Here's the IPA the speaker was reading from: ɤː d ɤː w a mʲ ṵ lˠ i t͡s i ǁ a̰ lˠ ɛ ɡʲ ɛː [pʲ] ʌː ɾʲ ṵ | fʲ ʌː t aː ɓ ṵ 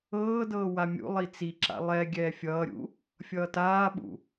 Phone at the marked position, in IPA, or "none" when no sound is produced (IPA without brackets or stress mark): fʲ